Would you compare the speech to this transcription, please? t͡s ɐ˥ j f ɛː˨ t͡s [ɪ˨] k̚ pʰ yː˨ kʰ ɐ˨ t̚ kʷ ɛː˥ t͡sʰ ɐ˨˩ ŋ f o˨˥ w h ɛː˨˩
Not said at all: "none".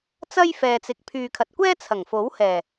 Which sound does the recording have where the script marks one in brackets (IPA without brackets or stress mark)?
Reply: ɪ˨